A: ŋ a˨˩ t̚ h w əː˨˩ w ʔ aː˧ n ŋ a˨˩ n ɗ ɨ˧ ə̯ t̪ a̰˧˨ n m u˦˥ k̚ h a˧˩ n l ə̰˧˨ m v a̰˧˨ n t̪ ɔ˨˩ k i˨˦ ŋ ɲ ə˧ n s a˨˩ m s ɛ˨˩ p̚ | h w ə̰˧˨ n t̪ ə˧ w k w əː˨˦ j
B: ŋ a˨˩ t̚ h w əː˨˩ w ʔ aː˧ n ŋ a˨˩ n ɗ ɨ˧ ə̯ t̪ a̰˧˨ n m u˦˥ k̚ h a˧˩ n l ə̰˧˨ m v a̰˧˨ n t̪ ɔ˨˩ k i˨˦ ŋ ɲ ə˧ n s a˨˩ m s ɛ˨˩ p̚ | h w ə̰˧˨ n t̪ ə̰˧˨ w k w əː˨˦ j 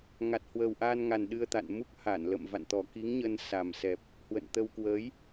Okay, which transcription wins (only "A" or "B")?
A